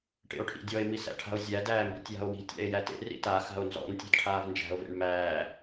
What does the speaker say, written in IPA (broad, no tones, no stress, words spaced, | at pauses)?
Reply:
ʈḛo̯ʈʰḭdʲɔe̯ misæ̰ʈʰa̤o̯zʲæ dæːmbi̤tʲja̤o̯wi̤ tʲæ̰e̯jætḛ rḭta xa̤o̯nzɔ̰n tʲæ̤dʈʰaːvnd͡ʒæ̤o̯ vḛɳmæː